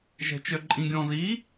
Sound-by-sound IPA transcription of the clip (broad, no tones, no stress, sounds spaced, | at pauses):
ʒ ɛ̤ t͡ʃ œ ǃʼ ĩ ɡʲ ɔ̃ ð i